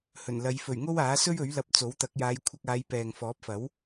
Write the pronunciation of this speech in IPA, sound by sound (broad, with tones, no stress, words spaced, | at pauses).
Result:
hɵ˨˩nlɐ˨˧jfɵ˨˩ɥ ŋo˥waː˨˥sɵ˥ɥɵ˨˥ɥ lɐ˧p̚t͡so˨˥wt̪ɐ˨˥k̚ jaː˨˧jkʷʰɐ˧k̚aː˨˧j pɛː˨ŋfɔː˨˥p̚fɐ˨˥w